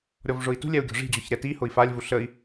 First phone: ɾʲ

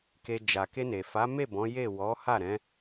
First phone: k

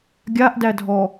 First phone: ɡʲ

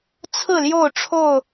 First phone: t͡sʰ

